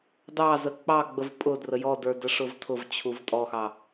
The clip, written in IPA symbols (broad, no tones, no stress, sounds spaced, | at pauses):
d ɑ z ə k͡p ɑ ɡ͡b ə v pʼ ʊ d r ə j ɔ d ə˞ d ə ʂ ʊ v tʰ ʊ v t͡ɕʰ u v tʼ ɔ x ɑ